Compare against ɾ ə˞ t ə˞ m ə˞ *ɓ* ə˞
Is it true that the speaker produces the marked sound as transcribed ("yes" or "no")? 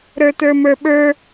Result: yes